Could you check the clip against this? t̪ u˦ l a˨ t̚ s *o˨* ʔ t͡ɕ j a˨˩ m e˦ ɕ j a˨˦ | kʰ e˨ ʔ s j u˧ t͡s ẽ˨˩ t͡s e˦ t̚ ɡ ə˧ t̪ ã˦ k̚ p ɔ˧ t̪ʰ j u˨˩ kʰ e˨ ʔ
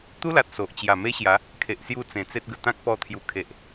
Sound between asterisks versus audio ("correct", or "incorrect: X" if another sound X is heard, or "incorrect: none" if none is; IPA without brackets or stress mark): correct